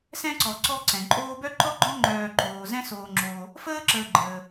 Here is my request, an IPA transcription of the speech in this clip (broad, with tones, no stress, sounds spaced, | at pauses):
s ɛ̃˥ ǀ ɔ˨ ǀ ɔ˦ ǀ ɛ̃˩ ǃʼ oː˦ b œ˥ ǃ ɔ˥ ɡ͡ǃ ɔ̃˥ ŋ͡ǃ œː˨ ǃ oː˩ z ɛ̃˥ s oː˨ ŋ͡ǁ oː˨ | f əː˥ ǁ əː˨ ɡ͡ǃ əː˩